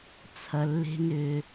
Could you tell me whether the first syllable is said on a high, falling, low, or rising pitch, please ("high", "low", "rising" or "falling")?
low